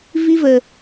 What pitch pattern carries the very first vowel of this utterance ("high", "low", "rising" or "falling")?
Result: high